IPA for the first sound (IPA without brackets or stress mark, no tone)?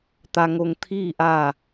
t̪